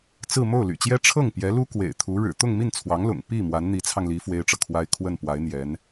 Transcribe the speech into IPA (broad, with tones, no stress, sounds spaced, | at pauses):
t͡s ɹ̩˥˧ m o˥˩ ʊ̯ l y̰˨˩ t͡ɕ j ɛ˥ ʈ͡ʂʰ ɤ˥˩ ŋ p j ɛ˧˥ l u˥ k w ḛ˨˩ ɪ̯ t̪ʰ u˧˥ ɻ ɻ̩˨˩ t̪ ʊ˥˧ ŋ m i˥˩ n t͡sʰ w ɑ˧˥ ŋ l ʊ̰˨˩ ŋ p i˥˩ m w a˧˥ n n̪ i˧˥ t͡sʰ ɑ˧ ŋ l i˧˥ f w e˥ ɪ̯ ʈ͡ʂ ɤ˨ kʰ w a˥ ɪ̯ kʰ w ə˥˩ n p w a˧˥ ɪ̯ n̪ j ɛ˧˥ n